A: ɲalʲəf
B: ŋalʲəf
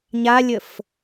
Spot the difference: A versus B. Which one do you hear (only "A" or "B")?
A